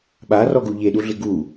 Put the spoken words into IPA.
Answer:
ɓ a r ɔ ɡ u ʎ e ɗ u ɮ ɪ ɡ u

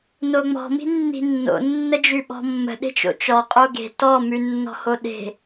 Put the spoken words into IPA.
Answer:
n o ŋ͡m ɔ̤ m i̤ nː i̤ nː o̰ nː ə d͡ʒ ʉ ɓ ɔ̤ mː ə̤ ɗ e̤ t͡ʃ o̰ t͡ʃ ɔ qʼ o ɡ e̤ t ɔ m ʉ nː ɔ̤ h o ɗ e̤

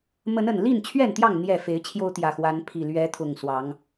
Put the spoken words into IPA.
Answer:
m ə˨˦ n ə˨˩ n l i˥˨ n t͡ɕʰ ɥ ɛ˥˨ n t̪ j ɑ˥˨ ŋ n̪ j ɛ˨˩ f e˨˦ ɪ̯ t͡ɕʰ j o˦ ʊ̯ t̪ j ä˨˩ x w a˨˦ n pʰ i˨˩ l ɥ ɛ˨˦ t̪ʰ ʊ˨˩ ŋ s w ɑ˨˦ ŋ

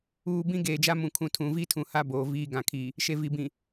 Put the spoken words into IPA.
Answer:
uː˨ b ĩ˦ ɡ eː˨ d͡ʒ a˦ m ũ˨ kʰ ũ˨ tʰ ũ˨ v i˦ tʰ ũ˨ h a˦ b oː˨ v iː˦ ɡ ã˨ kʰ i˨ | ʃ e˨ v i˨ b ĩ˨

